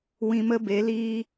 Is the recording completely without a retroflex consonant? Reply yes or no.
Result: yes